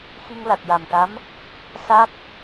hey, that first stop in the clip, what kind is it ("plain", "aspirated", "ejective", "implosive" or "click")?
plain